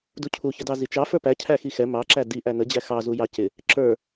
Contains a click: yes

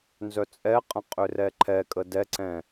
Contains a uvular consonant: yes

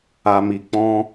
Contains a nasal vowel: yes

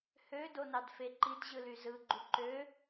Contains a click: yes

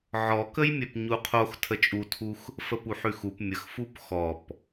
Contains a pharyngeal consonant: yes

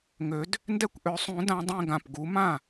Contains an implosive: no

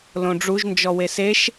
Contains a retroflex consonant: yes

